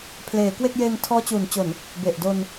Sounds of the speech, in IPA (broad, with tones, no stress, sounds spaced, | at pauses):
pʰ l eː˩˦ k w e˥˩ k̚ j eː˧ ŋ tʰ ɔː˦˥ t͡ɕ uː˩˦ n t͡ɕ o˨˩ n | b e˨˩ ʔ d o˧ n